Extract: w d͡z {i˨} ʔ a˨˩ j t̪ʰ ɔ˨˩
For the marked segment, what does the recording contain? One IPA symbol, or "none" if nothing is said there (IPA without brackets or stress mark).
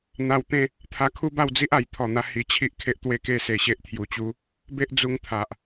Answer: i˦